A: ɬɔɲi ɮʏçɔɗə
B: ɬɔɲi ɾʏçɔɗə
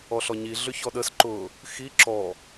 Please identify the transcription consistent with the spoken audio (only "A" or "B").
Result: A